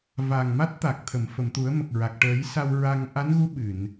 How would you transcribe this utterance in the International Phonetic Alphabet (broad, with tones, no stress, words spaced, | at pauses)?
va˨˩ŋma˦˥t̚t̪a˨˩k̚ t̪ʰə˨˩˨m fə˨˩˨mt̪u˨˩˦ə̯mə˨˩k̚ɹa˨˩k̚ ʈəː˨˩˦jsa˧w ɹa˧ŋ ʔa˧˥nɣu˧˥ ɓɨ˨˩˨n